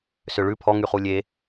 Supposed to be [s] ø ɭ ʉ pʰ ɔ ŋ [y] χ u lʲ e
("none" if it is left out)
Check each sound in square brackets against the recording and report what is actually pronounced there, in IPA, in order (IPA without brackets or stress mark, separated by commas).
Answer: s, y